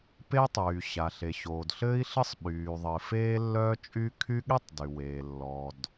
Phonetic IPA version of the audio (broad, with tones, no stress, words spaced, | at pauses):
pe˥tˤyː˩ ɕa˩ ɬe˩ɕoː˩dɬɘː˥i̯ɬɘ˥sˤ ɓyː˩ ðˤɘ˩feː˥ lːœː˥t͡ʃʼy˥ kʰy˥ ɠe˥tˤ dy˩weː˩ lːɔ˩d